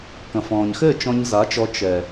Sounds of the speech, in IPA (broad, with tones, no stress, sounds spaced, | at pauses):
k ɐ̃˨ f ɔ̃ː˨ ɲ x ɘː˦˨ t͡ʃ ɔ̃˧ ɲ z a˨˦ t͡ʃ ɔ˧ t͡ʃ ɛ˨